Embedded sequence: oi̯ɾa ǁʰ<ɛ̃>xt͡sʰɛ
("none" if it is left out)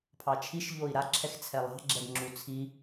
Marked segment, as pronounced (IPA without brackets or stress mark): ɛ